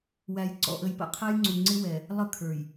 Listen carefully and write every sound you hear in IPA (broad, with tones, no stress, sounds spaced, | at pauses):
w æ˨ j ǀ ɔ̰˨ ʔ ə˨ j p ə̰˦˨ qʰ ɛ˦ j ŋ͡ǀ u˨ ŋ͡ǀ ɪ˦ w ɛ˨ | lˠ ə˦ kʰ ə˞˨ j